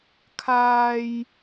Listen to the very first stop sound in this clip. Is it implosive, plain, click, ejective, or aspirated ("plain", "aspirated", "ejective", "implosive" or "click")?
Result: aspirated